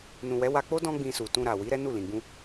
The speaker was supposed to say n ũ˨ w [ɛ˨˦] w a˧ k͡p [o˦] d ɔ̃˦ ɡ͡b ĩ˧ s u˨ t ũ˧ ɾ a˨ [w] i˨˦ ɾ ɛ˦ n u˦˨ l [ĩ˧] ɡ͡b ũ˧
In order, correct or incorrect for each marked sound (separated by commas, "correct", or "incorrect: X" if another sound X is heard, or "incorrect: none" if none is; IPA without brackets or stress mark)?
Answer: correct, correct, correct, incorrect: ĩ˨